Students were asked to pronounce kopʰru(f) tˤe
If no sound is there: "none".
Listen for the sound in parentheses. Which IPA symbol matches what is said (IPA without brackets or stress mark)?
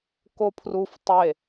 f